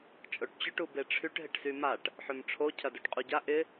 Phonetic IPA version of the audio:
t͡ʃʼ o ʈ t͡ɕ ʊ ʈ u b e ʈ͡ʂʰ y ʈ ɦ ɪ ʈ s y m a ʈ | ħ ø m ʈ͡ʂʰ o cʰ ɐ d o ʈ qʼ u ɟ a ʔ ɪ

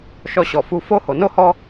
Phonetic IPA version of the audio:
ʃ ɔ˧ ɕ ɔ˨ f u˧ f o˦ h o˨ n o˦ h ɔ˦

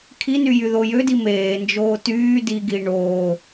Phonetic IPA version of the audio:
kʰ i n y j y ð o j ø d i m eː n d͡ʒ oː t yː d i ɡ iː ɳ oː

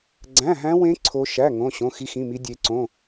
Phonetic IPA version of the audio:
ɡ͡ǀ æ̃˧˥˧ ɦ æ̃˦˥ w ẽ˦˥ ǀʰ o˦˥ ʃ æ˧˥˧ ŋ õ˧˥˧ ɕ õ˧˥˧ x i˦˥ x ĩ˧˥˧ m i˦˥ dʲ e˦˥ ǀ õ˧˥˧

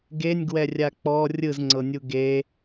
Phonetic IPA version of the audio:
ɡ e nʲ ɡ w ɛ rʲ a k͡p ɔ rʲ ɯ z ŋ͡ǀ ɤ nʲ u ɡ e

